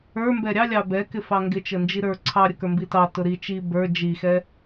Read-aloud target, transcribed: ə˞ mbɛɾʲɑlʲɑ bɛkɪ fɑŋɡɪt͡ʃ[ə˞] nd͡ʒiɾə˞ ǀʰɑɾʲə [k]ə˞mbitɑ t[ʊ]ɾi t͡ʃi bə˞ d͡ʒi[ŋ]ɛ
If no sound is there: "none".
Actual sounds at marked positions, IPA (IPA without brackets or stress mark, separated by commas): ə, k, ʊ, x